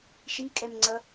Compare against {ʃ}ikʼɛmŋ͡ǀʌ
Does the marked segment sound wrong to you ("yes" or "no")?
no